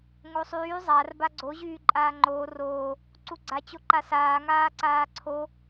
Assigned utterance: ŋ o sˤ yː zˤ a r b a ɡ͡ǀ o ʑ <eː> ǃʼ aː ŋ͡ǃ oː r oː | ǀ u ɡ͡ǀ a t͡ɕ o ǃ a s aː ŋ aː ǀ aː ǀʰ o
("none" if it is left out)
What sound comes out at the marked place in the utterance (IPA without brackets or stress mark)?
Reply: yː